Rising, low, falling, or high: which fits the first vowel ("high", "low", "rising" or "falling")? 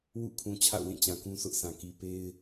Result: falling